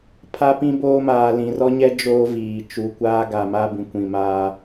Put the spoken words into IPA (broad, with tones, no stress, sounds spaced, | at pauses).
pʰ a˦ p ĩ˦ b oː˦ m aː˨ l ĩ˨ r ɔ˦ ɲ ɛ˦ d͡ʒ oː˦ v iː˨ t͡ʃ u˨ kʷ aː˦ ɡ a˨ m a˦ b ĩ˨ kʷ ĩ˨ m aː˦